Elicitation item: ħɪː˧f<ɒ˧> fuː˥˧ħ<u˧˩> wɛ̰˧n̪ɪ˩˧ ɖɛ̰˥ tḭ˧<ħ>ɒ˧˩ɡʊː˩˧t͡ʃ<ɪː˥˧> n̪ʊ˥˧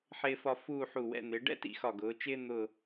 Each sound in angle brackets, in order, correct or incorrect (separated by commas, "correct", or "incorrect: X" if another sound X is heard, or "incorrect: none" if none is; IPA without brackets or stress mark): correct, correct, incorrect: x, incorrect: ɪː˥